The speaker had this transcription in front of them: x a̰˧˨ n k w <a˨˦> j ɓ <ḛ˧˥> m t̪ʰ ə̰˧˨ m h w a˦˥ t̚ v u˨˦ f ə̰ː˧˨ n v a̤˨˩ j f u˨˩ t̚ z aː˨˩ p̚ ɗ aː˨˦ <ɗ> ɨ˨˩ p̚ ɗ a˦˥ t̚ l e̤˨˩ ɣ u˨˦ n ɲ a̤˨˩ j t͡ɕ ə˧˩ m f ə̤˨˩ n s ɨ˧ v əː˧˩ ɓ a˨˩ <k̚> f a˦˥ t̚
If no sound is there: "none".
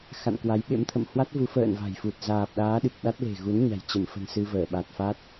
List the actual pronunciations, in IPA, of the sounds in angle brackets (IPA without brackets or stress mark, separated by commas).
a˨˦, ḛ˧˥, ɗ, t̚